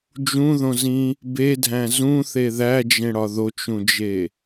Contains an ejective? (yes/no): no